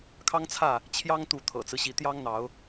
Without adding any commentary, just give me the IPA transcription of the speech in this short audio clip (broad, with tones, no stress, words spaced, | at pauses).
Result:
kʰɑ˦ŋt͡sʰä˥˨ | t͡ɕʰjɑ˦ŋt̪u˨˦ t̪ʰɤ̰˨˩t͡sɹ̩˦ɕi˨˦ t̪jɑ˦ŋn̪ɑ˨˦ʊ̯